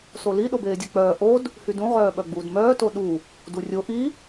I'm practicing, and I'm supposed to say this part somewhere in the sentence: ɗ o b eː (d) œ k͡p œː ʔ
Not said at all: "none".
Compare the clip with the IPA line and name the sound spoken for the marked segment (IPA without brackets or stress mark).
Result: dʲ